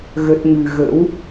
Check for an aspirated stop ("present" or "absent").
absent